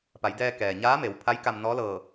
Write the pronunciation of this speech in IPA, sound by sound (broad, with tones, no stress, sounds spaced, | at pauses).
p a˩˧ j d ɛː˧ k ɛː˩ ɲ aː˧˥ m e˩˧ w pʰ a˧˥ j k a˧ m n ɔː˧˥ l ɤː˧˩